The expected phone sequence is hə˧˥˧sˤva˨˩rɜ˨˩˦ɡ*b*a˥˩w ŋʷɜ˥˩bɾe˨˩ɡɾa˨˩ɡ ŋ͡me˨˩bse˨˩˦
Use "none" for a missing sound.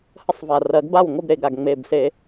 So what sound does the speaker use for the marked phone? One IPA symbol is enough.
b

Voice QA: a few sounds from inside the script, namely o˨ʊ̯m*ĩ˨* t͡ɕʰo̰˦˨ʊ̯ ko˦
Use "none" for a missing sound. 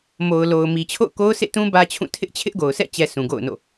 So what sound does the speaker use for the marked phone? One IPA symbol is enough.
i˨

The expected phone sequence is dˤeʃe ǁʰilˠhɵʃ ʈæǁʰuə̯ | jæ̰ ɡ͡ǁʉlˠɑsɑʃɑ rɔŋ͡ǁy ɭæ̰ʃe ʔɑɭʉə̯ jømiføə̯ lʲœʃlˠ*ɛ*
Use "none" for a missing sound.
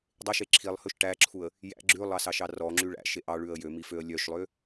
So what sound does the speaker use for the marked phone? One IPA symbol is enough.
ø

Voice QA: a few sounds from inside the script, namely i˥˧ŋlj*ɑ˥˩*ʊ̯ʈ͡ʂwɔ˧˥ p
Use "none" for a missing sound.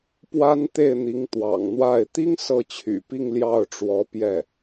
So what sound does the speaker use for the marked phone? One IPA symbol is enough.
ɑ˥˩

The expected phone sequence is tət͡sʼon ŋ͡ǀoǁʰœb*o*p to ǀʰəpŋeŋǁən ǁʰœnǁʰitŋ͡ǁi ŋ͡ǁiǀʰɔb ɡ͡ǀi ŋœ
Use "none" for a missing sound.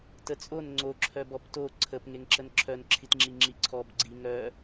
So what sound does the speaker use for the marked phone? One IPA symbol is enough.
ɔ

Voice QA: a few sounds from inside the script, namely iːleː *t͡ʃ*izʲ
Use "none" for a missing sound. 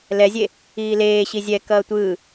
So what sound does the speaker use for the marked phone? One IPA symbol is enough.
ɕ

